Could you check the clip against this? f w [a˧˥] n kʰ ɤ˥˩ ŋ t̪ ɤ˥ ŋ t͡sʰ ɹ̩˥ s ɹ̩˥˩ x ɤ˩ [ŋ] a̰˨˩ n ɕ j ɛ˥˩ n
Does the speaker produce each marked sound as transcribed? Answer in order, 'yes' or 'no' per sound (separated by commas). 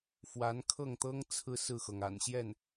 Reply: yes, yes